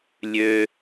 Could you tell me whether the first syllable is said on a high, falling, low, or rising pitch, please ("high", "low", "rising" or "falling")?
low